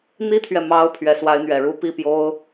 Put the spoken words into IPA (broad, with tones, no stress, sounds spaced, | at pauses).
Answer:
n̪ i˥ t̪ʰ ɥ ɛ˨ m ɑ˧˥ ʊ̯ pʰ ɥ ɛ˧˥ s w a˧˥ ɪ̯ n̪ ɥ ɛ˨˩ ɻ u˥ p i˥˩ p j o˥ ʊ̯